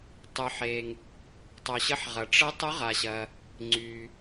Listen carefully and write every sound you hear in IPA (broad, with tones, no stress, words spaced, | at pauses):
tˤy˨ħe˨ŋ | tˤœ˨ɕə˧˥ħʁɐ˨ ʈ͡ʂə˧˥ tˤʊ˧˥ʁa˨ɕɐ˨ | ŋ͡ǀy˨